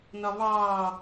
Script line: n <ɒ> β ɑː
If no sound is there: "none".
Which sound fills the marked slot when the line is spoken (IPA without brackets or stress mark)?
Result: ɒ